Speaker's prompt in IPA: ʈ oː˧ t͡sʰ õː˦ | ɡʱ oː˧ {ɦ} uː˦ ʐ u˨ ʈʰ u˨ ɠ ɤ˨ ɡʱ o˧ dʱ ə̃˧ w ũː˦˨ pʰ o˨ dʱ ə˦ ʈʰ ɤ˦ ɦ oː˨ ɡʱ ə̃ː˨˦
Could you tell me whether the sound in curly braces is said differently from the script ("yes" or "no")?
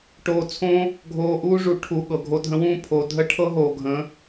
yes